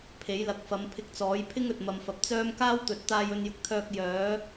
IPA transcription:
pʰ e˨˥ j l ɐ˨˥ k̚ f ɐ˨˧ m pʰ ɪ˧ k̚ t͡s ɔː˨˥ j pʰ ɪ˥ ŋ ɵ˨ t̚ m ɐ˨ m f ɐ˨ p̚ t͡s œː˥ m k aː˥ w t̪ ɵ˨ t̚ t̪ aː˧ j ɵ˧ n j ʊ˨ k̚ t̪ʰ œː˧ k̚ j œː˨˥

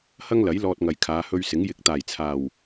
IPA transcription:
h ɐ˥ ŋ l ɐ˨˥ j l ɔː˧ t̚ ŋ ɐ˨ j kʰ aː˨˧ h ɵ˧ ɥ s ɪ˨˥ ŋ j ɪ˨˥ k̚ t̪ aː˨˩ j t͡sʰ aː˨˩ w

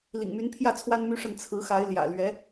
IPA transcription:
l ḭ˨˩ ŋ m y˧˥ n pʰ j ä˥˩ t͡sʰ w a˥ n m y˥ ʂ ə˥˩ n t͡sʰ ɹ̩˧˥ x a˧˥ ɪ̯ l j ä̰˨˩ l ɥ ɛ˧˥

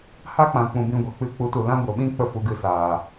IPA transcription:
h a˦ k͡p ã˧ k͡p ũ˧ b ĩ˧ ɡʷ ɛ˨ k͡p ɨ˦˨ k͡p u˨˦ t u˨ l ã˦ ɡʷ ə˨ ɓ ĩ˦ k͡p ə˧ f u˨ ɡ ɨ˨ s aː˨

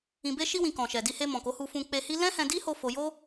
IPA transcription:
ĩ˨ b e˧ ʃ i˧ w ĩ˨ k ɔ̃˨ ʃ ɛ˨ d i˧ h e˧ m ɔ̃˨ k o˨˦ h u˧ f ũ˧ k͡p e˧ h i˦ l ɛ̃˦ h ɛ̃˧ d i˦ h o˧ f o˦ j o˦

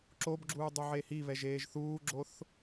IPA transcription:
ǁ o b ɡ͡ǁ uː dˤ u ʕ e h i β ɛ ʒ eː ʒ θ uː ɡ͡ǁ o θ

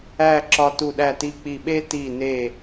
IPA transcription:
æ˥˧ ǁ ɒ˧ t u˧˩ ɗ æ˧˩ t i˧ k͡p i˧˩ ɓ e˥ t i˧˩ n e˧˩

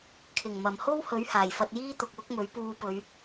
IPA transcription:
kʰ ɪ˨˩ ŋ m ɐ˨˩ m h o˥ w h ɵ˨˥ ɥ h aː˨˩ j f ɐ˧ t̚ j iː˥ t̪ ʊ˨ k̚ w ʊ˥ k̚ m ɵ˨˥ ɥ p uː˧ p ɵ˨˧ ɥ

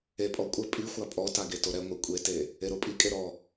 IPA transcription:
e pʼ ɔ kʷʼ ɘ pʼ i xʷ a pʼ ɔ t a ɡ e t o ɾ ɛ ŋʷ e kʷʼ e t e | e ɾ o pʼ i kʼ e ɾ ɔ

